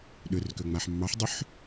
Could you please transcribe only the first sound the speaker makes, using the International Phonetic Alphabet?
ɗ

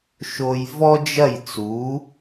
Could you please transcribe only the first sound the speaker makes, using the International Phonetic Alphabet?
ʃ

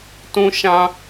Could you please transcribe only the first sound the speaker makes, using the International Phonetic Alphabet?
t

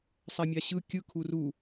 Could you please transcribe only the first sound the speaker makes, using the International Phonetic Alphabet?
sˤ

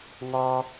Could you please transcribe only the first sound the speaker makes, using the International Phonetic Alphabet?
ŋ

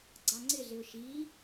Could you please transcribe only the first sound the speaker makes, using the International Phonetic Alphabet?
ɡ͡ǀ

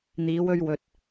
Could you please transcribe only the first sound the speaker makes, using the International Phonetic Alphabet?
n̪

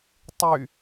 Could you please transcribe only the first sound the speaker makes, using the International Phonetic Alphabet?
tˤ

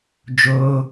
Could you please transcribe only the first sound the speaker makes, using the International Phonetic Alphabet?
d͡ʒ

